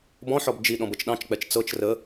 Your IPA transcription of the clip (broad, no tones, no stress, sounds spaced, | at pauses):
b ɔ̃ ħ ɔ b d͡ʒ i ɗ ɔ̃ b ɤ t͡ʃ ɗ ɑ̃ t͡ʃ k͡p ɛ t͡ʃ t͡s ɤ t͡ʃ r ə